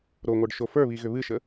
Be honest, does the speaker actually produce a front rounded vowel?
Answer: yes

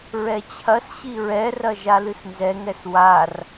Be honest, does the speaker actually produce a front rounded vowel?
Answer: no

